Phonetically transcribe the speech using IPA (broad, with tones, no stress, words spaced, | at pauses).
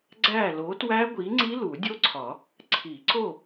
ɡ͡ǀæ˥˨ lo˨˥twæ˦˥ɡʷi˨˥ŋ͡ǀi˦˥ lu˨˩˦dʲo˦˥ǀʰɒ˨˩˦ | ǀʰi˨˩˦ǀo˥˨